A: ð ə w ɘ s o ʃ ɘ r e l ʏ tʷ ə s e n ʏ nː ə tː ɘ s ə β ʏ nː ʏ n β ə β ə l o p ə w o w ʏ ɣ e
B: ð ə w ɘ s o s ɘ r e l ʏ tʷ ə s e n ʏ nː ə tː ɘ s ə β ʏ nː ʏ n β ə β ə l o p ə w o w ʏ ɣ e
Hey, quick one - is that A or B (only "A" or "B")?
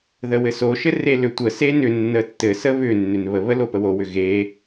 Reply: A